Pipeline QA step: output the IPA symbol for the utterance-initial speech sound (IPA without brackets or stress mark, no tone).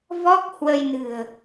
v